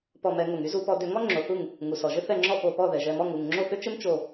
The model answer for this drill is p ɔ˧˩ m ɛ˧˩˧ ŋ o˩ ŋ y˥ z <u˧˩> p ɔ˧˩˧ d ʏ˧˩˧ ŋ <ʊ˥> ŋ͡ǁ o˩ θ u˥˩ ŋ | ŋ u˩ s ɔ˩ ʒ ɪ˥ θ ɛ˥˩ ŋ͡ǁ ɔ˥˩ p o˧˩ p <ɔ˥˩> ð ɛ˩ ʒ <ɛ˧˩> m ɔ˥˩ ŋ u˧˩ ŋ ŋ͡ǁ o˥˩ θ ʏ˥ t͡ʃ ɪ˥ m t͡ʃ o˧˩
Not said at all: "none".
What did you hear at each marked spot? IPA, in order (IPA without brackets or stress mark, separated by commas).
u˧˩˧, ɔ˥, ɔ˥˩, ɛ˧˩